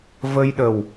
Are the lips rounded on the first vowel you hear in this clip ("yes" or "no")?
no